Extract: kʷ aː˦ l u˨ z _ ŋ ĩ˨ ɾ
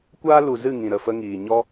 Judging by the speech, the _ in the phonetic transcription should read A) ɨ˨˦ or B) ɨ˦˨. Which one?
B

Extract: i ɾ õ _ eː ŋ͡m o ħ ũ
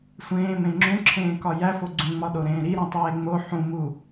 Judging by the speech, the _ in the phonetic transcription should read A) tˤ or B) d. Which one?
A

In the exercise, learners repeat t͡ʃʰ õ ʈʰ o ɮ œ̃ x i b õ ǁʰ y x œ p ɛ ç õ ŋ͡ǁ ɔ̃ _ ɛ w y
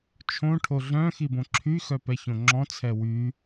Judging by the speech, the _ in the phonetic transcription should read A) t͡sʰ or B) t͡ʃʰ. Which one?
A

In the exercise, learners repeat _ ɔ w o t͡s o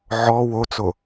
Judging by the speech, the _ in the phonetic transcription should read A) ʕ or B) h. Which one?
A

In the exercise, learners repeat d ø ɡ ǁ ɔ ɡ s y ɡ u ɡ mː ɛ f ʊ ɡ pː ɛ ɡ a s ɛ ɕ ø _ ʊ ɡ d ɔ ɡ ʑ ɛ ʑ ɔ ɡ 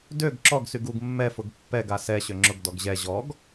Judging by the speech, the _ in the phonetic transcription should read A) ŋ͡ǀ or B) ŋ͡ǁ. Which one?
B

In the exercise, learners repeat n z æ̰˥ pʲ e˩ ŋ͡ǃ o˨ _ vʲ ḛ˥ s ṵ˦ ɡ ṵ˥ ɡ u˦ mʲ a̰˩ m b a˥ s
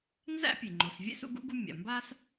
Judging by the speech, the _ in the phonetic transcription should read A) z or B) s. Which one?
B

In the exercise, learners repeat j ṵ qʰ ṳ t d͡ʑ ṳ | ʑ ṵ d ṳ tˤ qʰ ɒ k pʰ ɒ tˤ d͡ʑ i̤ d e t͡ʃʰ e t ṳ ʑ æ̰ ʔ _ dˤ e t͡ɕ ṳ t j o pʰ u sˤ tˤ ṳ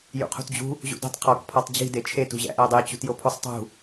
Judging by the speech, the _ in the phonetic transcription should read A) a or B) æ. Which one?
B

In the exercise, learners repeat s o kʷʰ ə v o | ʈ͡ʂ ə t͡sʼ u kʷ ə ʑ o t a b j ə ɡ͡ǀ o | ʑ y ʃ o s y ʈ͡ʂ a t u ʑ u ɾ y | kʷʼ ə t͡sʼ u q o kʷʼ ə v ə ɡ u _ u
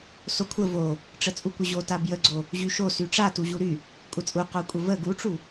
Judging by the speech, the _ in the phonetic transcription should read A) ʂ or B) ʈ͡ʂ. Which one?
B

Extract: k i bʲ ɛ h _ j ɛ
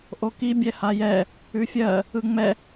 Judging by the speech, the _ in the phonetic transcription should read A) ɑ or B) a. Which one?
B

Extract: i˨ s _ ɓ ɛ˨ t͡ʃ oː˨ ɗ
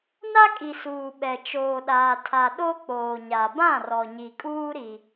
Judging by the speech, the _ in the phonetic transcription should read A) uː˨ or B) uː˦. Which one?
A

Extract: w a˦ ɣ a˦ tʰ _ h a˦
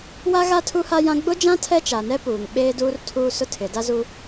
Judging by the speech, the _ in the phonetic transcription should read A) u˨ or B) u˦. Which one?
B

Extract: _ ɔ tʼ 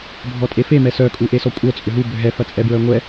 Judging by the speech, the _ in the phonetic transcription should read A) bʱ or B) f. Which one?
A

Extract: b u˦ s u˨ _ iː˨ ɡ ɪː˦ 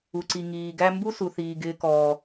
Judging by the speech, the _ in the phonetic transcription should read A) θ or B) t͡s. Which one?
A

